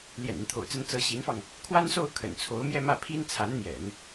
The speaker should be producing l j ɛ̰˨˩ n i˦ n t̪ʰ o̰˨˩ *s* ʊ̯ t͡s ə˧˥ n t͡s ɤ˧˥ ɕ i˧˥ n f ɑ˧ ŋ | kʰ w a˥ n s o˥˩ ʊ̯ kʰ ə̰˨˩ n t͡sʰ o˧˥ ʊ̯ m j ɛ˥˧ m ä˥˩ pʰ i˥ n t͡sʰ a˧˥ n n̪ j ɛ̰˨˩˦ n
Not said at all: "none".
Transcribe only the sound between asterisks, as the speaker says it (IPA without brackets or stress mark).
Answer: none